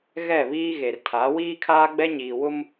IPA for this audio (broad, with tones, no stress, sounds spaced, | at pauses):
ɣ ɛ˦˨ β iː˦ ɣ e˨ r tʰ a˨˦ w iː˦ kʰ aː˦ ɡ͡b ɛ˦ ɲ iː˨ w ʊ˦ m